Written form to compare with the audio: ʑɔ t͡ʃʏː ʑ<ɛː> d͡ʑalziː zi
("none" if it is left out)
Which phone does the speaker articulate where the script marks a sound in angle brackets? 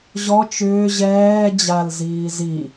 ɛː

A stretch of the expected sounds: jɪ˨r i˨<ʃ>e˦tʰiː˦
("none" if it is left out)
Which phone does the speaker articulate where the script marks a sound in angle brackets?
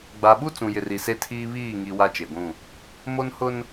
s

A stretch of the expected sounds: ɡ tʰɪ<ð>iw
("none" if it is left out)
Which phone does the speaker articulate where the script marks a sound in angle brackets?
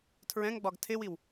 w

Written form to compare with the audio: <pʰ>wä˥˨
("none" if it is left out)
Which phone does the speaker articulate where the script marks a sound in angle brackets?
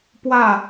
p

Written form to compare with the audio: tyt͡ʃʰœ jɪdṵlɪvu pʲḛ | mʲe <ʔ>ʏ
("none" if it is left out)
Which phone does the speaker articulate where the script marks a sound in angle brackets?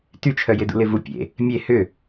h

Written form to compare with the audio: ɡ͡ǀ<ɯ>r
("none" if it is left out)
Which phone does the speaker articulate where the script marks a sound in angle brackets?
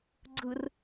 ɯ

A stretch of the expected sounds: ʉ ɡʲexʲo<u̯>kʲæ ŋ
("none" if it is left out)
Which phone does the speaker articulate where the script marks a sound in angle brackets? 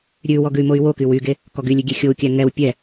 u̯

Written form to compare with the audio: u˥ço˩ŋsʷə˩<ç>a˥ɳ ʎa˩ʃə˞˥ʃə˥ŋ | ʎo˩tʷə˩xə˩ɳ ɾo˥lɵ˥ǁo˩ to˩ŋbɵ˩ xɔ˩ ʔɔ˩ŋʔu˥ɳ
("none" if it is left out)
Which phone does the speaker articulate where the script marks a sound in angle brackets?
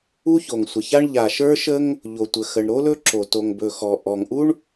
ç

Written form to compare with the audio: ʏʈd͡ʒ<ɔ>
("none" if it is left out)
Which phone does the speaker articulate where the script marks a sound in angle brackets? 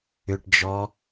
ɔ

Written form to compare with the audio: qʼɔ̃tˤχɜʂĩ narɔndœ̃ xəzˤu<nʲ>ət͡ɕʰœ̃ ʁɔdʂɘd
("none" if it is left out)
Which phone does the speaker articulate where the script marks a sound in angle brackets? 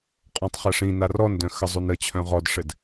n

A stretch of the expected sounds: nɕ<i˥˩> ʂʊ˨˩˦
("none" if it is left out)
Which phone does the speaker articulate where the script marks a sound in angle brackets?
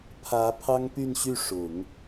y˥˩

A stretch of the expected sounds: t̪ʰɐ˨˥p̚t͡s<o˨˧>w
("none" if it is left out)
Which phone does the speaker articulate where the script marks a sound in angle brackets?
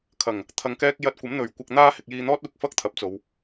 o˨˧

